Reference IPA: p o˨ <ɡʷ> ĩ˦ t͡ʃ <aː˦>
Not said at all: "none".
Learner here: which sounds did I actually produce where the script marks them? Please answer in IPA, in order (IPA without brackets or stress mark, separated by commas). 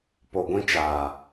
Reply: ɡʷ, aː˨